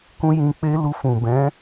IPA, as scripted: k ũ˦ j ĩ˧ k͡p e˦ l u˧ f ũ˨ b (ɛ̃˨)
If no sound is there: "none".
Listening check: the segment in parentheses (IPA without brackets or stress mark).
ɛ̃˨˦